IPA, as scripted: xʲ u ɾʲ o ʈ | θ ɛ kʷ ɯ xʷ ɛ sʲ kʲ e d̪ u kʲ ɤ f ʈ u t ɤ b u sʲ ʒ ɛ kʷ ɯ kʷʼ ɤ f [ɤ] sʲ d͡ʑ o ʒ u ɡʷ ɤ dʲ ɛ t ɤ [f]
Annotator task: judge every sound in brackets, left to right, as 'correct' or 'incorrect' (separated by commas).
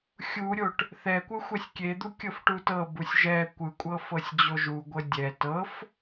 correct, correct